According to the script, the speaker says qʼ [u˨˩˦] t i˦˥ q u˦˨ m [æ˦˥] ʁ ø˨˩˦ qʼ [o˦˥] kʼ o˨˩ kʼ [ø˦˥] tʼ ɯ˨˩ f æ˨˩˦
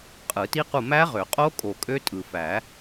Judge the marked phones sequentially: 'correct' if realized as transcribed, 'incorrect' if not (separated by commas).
incorrect, correct, correct, correct